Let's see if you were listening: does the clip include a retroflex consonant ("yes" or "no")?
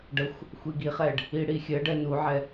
yes